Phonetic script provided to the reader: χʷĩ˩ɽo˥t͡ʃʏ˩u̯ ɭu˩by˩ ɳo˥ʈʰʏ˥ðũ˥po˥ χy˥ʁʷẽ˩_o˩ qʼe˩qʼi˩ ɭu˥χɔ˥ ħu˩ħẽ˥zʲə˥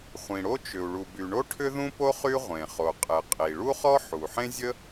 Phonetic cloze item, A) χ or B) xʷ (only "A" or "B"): A